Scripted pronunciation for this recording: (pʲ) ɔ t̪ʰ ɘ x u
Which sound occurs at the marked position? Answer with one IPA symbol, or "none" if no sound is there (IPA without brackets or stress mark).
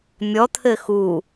mʲ